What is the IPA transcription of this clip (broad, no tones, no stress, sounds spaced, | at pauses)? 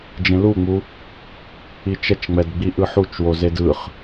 d͡ʒ ẽ l u ŋ͡m u | i t͡ʃ ɛ t͡ʃ ŋ͡m ɛ d ɡ͡b i ʔ ɯ ħ u t͡ʃ w o z e d ɯ χ